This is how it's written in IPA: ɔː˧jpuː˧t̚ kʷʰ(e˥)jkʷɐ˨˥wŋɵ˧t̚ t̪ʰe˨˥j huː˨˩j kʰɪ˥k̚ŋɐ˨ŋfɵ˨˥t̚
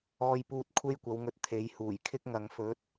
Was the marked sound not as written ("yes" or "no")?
no